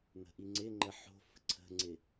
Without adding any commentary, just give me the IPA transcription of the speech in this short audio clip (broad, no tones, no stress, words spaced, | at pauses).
n̪ə̤ʔiŋ͡ǀɪŋ͡ǃə ħo̤ fə̤ǀʰə̤ŋ͡ǀɪ